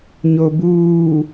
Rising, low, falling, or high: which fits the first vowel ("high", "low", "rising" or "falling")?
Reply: low